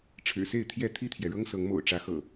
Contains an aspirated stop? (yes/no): yes